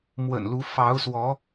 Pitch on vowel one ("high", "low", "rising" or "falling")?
low